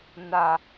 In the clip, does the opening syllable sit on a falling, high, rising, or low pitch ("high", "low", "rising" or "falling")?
low